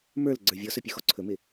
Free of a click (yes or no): no